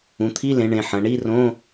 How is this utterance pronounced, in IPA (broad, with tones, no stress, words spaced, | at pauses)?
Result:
ũ˩˧t̪ʰi˧˥˧lẽ˩˧ ɳẽ˩˧ħɐ̃˩˧ ɳi˧˥˧rõ˧˥˧